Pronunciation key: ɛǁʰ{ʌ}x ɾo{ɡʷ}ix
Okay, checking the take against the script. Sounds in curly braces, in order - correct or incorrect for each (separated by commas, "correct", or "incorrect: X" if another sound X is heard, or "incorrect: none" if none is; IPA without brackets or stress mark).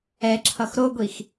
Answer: correct, correct